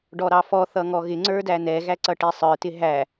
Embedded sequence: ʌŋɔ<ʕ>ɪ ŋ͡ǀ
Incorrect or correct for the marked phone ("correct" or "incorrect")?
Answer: incorrect